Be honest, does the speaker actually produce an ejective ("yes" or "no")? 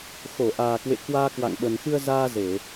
no